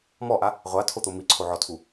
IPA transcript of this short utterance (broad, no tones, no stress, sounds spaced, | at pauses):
m ɔ ʔ a | ʁʷ a tʰ o t̪ o m i ǀʰ o ʕ ɔ tʰ u